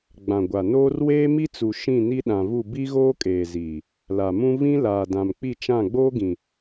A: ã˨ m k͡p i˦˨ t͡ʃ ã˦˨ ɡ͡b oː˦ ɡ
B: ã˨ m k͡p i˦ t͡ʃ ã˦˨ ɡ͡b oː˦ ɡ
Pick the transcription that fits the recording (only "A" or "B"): A